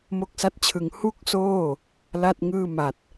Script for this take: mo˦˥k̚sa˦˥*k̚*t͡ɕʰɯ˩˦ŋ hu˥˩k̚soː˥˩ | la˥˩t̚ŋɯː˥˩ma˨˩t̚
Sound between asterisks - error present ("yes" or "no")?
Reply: yes